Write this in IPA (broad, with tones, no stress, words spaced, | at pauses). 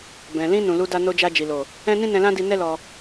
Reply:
bɛ̃˨ lĩ˧ nũ˨lu˧da˧ no˧d͡ʒa˧d͡ʒi˨lo˨ | ɛ̃˦nĩ˦ nɛ̃˧lã˦di˧ nɛ˦lɔ˧